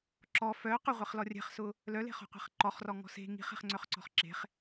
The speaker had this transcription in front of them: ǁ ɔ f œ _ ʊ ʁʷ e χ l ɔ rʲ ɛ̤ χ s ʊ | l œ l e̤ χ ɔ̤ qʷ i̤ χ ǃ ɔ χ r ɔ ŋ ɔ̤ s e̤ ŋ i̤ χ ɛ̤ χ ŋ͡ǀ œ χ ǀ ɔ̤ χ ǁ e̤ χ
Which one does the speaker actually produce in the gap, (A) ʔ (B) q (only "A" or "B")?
B